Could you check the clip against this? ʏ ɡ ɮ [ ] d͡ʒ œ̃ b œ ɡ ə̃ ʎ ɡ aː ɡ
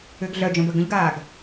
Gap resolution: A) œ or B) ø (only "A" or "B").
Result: A